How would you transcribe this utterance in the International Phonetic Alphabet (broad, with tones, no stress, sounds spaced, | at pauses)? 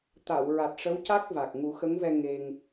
t̪ a˨˩˨ w ɹ a˨˩ t̚ ʂ ə˧˥ w c a˦˥ k̚ v a˨˩ k̚ ŋ u˨˩˦ x ə˧˥ ŋ v ɛ˧ ŋ e˧ ŋ